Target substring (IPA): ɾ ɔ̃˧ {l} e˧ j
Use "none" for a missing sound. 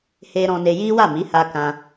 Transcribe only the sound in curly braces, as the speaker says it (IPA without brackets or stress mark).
n